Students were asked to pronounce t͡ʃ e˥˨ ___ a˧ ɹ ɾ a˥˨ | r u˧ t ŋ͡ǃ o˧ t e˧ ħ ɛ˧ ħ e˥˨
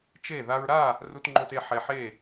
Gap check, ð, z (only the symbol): ð